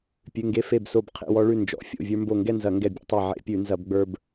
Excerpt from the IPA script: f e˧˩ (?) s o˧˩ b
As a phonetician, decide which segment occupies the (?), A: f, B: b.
B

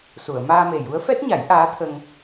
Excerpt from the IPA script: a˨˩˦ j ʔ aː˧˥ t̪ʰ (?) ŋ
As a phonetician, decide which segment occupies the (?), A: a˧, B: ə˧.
B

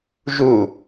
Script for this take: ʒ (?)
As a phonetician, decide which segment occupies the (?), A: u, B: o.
A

